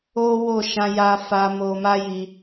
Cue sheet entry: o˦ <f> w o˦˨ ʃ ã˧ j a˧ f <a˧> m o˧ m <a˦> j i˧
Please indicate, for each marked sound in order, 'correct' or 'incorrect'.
incorrect, correct, correct

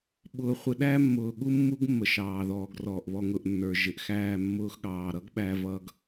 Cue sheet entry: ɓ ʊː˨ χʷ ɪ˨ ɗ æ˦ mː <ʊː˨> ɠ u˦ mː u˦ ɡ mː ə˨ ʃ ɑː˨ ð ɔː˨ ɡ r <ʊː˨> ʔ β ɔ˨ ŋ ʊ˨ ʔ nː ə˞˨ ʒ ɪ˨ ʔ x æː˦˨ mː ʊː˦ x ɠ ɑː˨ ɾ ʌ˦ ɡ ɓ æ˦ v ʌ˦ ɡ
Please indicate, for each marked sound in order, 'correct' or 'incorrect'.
correct, incorrect

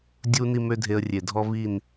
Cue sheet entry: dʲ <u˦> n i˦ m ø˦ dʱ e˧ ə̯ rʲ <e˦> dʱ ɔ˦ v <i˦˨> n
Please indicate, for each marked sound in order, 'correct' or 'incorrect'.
correct, incorrect, correct

